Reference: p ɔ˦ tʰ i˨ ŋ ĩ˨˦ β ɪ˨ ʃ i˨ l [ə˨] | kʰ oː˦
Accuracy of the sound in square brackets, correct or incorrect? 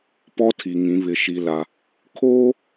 incorrect